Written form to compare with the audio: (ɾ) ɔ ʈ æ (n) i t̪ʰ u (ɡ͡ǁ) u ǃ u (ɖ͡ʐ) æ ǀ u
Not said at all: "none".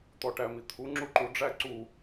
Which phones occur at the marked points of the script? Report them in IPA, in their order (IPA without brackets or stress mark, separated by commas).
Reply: t̪, m, ŋ͡ǁ, ɖ͡ʐ